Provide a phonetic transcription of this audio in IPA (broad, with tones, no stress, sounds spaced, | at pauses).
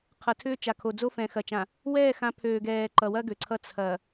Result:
qʰ ʌ˨ tʰ ʏː˦ t͡ʃ a˨ kʰ o˨ d͡z o˦ f ɛ̃˨ x ɐ˨ t͡ʃ ã˨ | w ɛː˦˨ x ã˨˦ pʰ øː˨ ɡ ɛː˨ ǃ ʌ˨ w ɐ˦ ɡ ø˨ ǀʰ ʌ˦ t͡sʰ ɐ˨